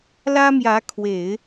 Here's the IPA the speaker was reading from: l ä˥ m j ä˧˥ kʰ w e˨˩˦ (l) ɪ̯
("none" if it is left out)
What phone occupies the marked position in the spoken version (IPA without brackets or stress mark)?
none